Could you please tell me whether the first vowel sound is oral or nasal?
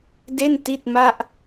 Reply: oral